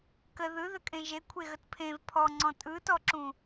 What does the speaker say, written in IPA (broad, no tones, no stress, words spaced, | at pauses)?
kə ðɯðəkʼẽ ʒekʷʰeɣət pʰẽv pʰɔŋ͡ǀɔ̃ tʼɯtɔǁũ